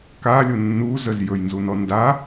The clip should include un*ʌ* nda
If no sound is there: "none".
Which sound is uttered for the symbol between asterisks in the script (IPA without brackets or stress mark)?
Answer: ɔ